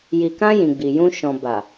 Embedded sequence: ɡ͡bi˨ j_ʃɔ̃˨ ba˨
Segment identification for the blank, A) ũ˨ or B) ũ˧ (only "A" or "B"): B